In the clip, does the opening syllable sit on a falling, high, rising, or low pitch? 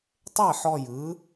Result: falling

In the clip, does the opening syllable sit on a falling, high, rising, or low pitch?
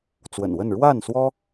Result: low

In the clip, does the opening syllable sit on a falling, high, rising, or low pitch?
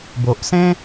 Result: low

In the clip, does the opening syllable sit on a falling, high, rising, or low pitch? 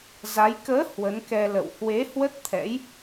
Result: rising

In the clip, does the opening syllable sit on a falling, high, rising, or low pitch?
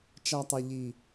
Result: low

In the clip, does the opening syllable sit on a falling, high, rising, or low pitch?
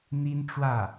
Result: high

